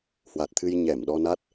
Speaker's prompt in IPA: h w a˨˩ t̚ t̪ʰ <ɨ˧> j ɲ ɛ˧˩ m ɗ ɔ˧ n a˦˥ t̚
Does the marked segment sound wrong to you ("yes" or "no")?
no